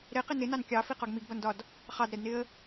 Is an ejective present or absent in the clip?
absent